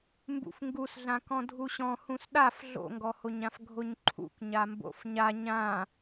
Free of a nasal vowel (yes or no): no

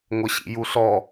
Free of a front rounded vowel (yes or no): yes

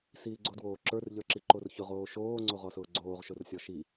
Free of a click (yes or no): no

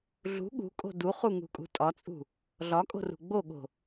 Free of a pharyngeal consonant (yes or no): yes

